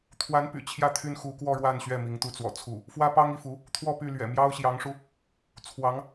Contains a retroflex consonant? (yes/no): yes